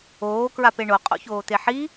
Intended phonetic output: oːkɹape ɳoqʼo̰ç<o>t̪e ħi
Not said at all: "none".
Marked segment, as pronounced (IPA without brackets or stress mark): oː